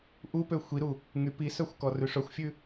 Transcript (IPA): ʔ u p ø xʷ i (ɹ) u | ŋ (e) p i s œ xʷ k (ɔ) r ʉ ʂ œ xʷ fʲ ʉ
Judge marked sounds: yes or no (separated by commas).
no, no, yes